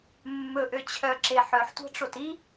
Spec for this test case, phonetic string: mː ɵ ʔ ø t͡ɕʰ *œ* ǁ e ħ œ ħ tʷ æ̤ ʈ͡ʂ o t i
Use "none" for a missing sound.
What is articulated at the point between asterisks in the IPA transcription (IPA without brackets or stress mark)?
œ